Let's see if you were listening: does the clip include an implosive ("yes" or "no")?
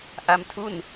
no